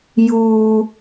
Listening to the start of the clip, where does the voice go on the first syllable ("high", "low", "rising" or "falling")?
high